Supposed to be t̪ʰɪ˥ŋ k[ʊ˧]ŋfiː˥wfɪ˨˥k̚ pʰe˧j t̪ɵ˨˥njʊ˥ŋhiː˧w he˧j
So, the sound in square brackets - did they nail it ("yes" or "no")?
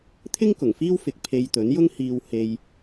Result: no